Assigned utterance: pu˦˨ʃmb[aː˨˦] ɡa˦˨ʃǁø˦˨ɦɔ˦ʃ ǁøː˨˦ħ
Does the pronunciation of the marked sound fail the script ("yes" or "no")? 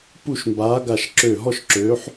no